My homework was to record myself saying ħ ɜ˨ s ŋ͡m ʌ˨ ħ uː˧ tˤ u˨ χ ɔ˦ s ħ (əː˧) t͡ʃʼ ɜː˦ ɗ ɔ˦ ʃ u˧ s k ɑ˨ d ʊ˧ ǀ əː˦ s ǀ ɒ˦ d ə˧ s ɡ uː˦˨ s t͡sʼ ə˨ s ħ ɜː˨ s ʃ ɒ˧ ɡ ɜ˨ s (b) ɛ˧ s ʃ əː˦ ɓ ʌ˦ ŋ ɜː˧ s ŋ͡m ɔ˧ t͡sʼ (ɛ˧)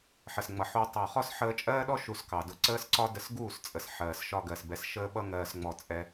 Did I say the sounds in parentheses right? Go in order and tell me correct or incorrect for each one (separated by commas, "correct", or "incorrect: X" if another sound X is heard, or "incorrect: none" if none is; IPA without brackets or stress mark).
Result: correct, correct, correct